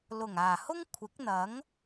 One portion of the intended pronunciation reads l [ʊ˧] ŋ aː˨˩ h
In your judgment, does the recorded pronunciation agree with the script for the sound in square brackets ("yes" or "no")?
no